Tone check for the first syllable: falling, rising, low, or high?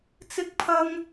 high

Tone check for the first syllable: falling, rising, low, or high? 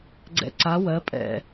low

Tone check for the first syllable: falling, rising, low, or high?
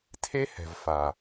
high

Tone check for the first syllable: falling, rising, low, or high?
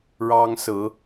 high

